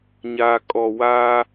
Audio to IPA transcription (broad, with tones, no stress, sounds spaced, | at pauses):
ɲ aː˨ kʼ ɔ˨ w aː˦